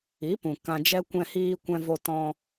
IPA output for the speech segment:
i˨˦ p ũ˨ k ã˧ d͡ʒ ɛ˦ kʷ ɛ̃˧ h iː˧ kʷ ɛ̃˧ v o˧ t ɔ̃˧

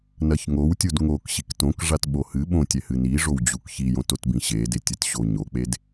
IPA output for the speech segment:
n ɐ ç ŋ o w tʲ u d ŋ o k ɕ i k t õ k ʐ a t ɓ o h ɨ ɓ õ tʲ ɛ h ɨ n i ʐ o w d͡ʑ u k ç i j õ t o t b ĩ ɕ e d e tʲ ɘ t ɕ o ɲ o k͡p e d

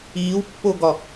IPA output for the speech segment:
iː w pː o ɡ ɒ

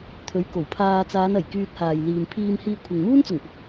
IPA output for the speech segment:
t̪ʰ ɵ˨˥ ɥ k o˨˩ w pʰ aː˧ t͡s aː˨˧ n ɐ˨˩ j k yː˧ t̚ h aː˨ j l iː˨ m pʰ iː˧ m h iː˧ kʷʰ ɪ˨ ŋ m uː˥ n t͡s ʊ˨˩ ŋ p ʊ˨˥ k̚

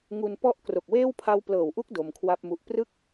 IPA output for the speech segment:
ŋ u˧ n p ɔ˥˩ ʔ k r o˨˩ k̚ w eː˥˩ w pʰ a˦˥ w p l ɤː˨˩ w ʔ u˦˥ k̚ d o˧ m kʰ w a˥˩ p̚ m u˦˥ ʔ p r ɯ˥˩ k̚

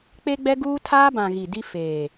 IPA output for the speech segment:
k͡p e˦ ɡ͡b ɛ˦ ɡ uː˦ tʰ aː˦ b ã˨ ɣ i˨ d i˦ f eː˨

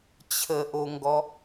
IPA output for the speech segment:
t͡ɕʰ ə ʔ o ŋ ɡ ɔ

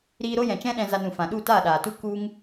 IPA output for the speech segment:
ɾ iː˧ ɾ o˦ j ɛ̃˨ t͡ʃ ɛ̃˦ ɗ ɛ̃˧ z a˧ n ũ˨ f ã˨ ɗ u˦˨ t aː˦˨ ɗ aː˨ t u˦ k u˦ ŋ

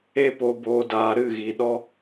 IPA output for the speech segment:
e˧ p o˨ b oː˨ d aː˨ ɾ ɨ˦˨ ɣ i˨ ɗ ɔ˦

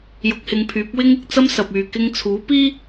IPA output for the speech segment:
j ʊ˨˥ k̚ h ɪ˨˧ ŋ pʰ yː˨˥ p̚ w ɪ˧ ŋ ɪ˨ k̚ t͡s ɐ˥ m s ɐ˨ p̚ yː˨ k ɪ˧ ŋ t͡sʰ uː˨˥ p iː˥

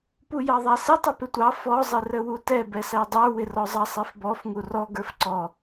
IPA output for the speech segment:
p u j ɑ ðˤ æ s ɪ tˤ ʊ p ɪ tʷ ɑ f ɔ zˤ ɪ r ə w u t ɛ b ɛ s æ dˤ ə˞ w ɪ r ɔ zˤ ɑ sˤ ɛ f b ɔ f ŋ u r ɔ ɡ ə˞ f ǀ ɔ

